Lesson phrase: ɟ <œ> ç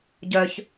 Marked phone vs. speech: correct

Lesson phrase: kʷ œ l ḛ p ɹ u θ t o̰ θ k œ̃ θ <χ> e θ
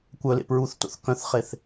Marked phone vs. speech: correct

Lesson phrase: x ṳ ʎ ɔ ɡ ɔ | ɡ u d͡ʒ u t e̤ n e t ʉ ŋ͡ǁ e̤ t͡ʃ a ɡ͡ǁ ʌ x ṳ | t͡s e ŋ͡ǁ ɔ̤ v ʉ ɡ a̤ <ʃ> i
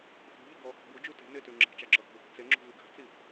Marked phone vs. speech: incorrect: t͡s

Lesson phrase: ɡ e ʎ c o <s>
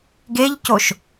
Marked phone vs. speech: incorrect: ʃ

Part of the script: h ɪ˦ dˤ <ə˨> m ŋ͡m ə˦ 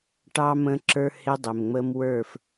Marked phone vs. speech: incorrect: ɪ˨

